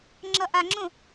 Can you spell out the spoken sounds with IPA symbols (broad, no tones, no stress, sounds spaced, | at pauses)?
ŋ͡ǁ ʌ ʔ a ŋ͡ǁ õ